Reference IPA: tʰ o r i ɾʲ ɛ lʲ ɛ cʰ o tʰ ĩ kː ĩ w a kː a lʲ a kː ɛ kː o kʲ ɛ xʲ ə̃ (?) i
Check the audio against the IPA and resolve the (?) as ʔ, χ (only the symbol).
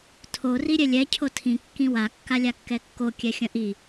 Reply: ʔ